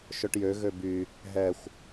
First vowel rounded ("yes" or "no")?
yes